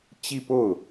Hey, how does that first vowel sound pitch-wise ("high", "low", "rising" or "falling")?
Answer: falling